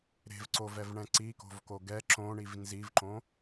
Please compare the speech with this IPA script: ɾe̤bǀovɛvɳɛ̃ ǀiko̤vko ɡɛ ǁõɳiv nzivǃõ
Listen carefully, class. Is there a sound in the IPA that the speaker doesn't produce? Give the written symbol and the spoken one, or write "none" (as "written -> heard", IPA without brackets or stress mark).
b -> v